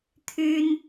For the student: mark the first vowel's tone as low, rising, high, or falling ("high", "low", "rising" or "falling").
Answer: high